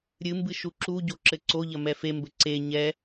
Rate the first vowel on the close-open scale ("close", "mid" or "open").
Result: close